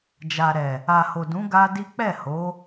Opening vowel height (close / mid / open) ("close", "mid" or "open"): open